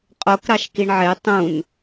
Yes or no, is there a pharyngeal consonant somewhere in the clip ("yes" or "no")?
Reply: yes